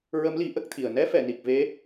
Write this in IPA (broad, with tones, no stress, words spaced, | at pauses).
ɹə˧˥mli˨˩˦ ʔə˦˥k̚t̪ʰi˨˩ə̯ nɛ˧˥fɛ˨˩˨ ni˨˩k̚ve˧˥